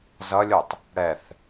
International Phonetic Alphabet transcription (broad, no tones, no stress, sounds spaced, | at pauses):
z ʌ lʲ u tˤ | ɽ ɛ θ